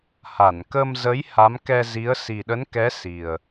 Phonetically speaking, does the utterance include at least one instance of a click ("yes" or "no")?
no